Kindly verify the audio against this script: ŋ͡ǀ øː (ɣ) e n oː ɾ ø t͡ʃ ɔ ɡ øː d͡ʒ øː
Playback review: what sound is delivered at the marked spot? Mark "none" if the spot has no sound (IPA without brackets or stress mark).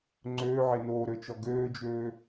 ʕ